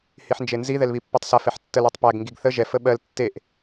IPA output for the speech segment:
h i ħ n d͡ʒ e n z i ð ɛ l β i pː i tˤ s a f ɛ ħ tː ə l e tˤ p æ ɡ ŋ ɡ i ɡ θ ə ʒ ɛ f ə ɓ ɜ l tː e ʔ

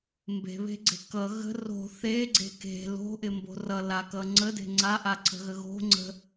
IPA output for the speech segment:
m b e̤ β e̤ ɡ͡ǀ e̤ k ʌ ɣ ə̤ r o̤ θ e ɡ͡ǀ e̤ k e̤ l o̤ ʔ ɪ m b o̤ r ʌ l a k ʌ ŋ͡ǀ ə d e̤ ŋ͡ǀ a ʔ a ǀ ə̤ ɣ ə ɣ o̤ ŋ͡ǀ ə̤

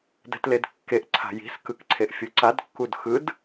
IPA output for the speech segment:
d ɛ̤ t l e d kː e ʔ ǀʰ a̤ j i̤ s k ɯ k ǀʰ e ʔ fʲ u ǀ a d kː u d x ɯ d

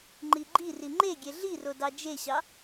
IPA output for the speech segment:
ŋ͡ǃ i ɡ͡ǃ i r i ŋ͡ǃ e ɡʲ e ɮ i r o d ɑ d͡ʒ e ɕ ɑ

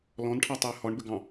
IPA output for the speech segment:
l ɔ̃ n ʈʰ ɑ tˤ e ə̯ h ɔ ɳ b ɘ ɡ ɑ̃

